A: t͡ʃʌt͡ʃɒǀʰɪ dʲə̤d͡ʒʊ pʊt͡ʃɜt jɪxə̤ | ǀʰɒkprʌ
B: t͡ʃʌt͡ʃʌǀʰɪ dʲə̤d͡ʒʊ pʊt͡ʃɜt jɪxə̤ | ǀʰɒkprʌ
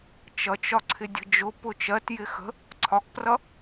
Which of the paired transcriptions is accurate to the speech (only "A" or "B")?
A